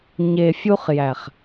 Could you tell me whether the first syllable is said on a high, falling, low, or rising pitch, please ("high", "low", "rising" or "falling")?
low